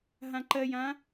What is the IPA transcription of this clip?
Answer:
ɦ ã ǃ ɜ j ã

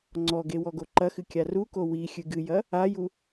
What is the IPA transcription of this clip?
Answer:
ŋ͡ǀ ɔ ɡ e w ɔ ɡ o ǃ ɐ x ɨ kʲ a r u k o w i xʲ ɨ ɡ ɨ j ɐ | a j u

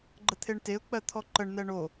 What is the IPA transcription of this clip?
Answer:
ɡ͡ǃ ə t̪ʰ e ɳ t e ʊ̯ k͡p ɜ t̪ʰ ɔ ǃ ə ɳ n̪ ɛ ɳ o

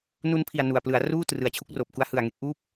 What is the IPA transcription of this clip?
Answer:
n u˧ n pʰ i˨˩ a̯ n u˨˩ a̯ p l ɯ˩˦ a̯ r uː˥˩ t r ɯ˨˩ a̯ t͡ɕʰ u˦˥ k̚ r oː˨˩ p̚ k u˦˥ a̯ h ɯ˨˩ a̯ ŋ e˦˥ k̚ ʔ uː˥˩ p̚

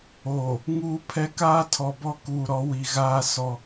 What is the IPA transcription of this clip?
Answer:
oː˨ | ŋ uː˦ pʰ ɛ˦ k aː˦ tʰ ɔ˨ b ɔ˦ k uː˨ ɾ ɔ˨˦ w i˨ ɣ aː˦ s ɔ˦

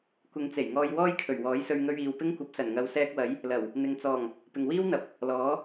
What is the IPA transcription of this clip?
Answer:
kʷ ɪ˨˧ ŋ t͡s e˨˩ j ŋ ɔː˧ j w ɔː˥ j kʰ ɵ˨˩ ɥ w ɔː˨˥ j s ɵ˧ ɥ ŋ ɵ˧ ɥ iː˨ w p ɪ˥ ŋ kʷ ɐ˨˥ p̚ s ɐ˨˩ n ŋ ɐ˨˧ w s ɛː˧ k̚ w ɐ˨˥ j | l ɐ˨˩ w | n̪ ɪ˨ ŋ t͡s ɔː˨˩ ŋ | p ɪ˨ ŋ w iː˥ w n̪ ɐ˨ p̚ | l ɔː˨˥

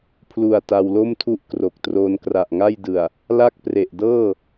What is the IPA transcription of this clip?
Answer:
pʰ l u˨˩ a̯ t a˧ w l o˥˩ m tʰ u˥˩ ʔ k r o˨˩ k̚ t r oː˧ n k r a˨˩ ʔ ŋ a˥˩ j d ɯ˨˩ a̯ | l a˥˩ k̚ p r e˨˩ ʔ d ɤː˥˩

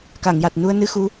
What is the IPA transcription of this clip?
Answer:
k a˨˩˨ ŋ j a˨˩ t̚ n u˧ ə̯ n ɨ˧ x u˧˥

